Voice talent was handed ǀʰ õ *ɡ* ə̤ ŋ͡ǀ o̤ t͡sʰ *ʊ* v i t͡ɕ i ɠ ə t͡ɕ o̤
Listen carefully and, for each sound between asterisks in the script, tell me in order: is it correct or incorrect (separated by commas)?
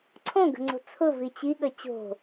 correct, correct